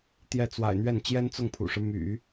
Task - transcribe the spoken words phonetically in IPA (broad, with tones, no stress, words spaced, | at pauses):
t̪jɛ˥˩t͡swa̰˨˩ɪ̯n̪ɥɛ˥˩n t͡ɕjɛ˥nt͡sʊ˥˩ŋpʰṵ˨˩ʂɻ̩˦ my̰˨˩˦